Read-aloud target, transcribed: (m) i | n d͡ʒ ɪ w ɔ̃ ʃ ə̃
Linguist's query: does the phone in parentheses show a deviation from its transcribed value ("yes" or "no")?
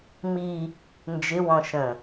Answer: no